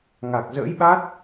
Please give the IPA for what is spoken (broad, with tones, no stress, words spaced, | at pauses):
ŋa˨˩k̚zə̰ː˧˥jɓa˦˥t̚